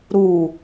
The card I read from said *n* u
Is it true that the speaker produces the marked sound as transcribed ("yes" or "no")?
no